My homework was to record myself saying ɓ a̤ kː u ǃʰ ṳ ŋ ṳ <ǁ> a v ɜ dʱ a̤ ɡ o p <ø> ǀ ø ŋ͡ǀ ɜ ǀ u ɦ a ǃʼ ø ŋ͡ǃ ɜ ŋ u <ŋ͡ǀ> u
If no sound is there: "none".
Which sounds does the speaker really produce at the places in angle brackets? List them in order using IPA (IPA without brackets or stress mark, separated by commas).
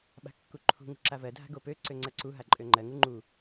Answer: ǁ, ø, ŋ͡ǃ